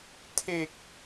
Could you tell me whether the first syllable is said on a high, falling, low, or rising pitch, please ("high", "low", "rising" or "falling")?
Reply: low